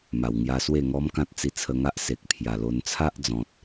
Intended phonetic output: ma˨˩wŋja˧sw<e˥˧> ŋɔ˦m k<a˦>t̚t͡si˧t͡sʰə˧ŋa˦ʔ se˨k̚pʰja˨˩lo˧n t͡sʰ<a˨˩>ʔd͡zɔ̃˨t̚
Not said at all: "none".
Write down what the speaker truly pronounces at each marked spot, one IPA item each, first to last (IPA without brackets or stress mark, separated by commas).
e˥˧, ã˦, a˦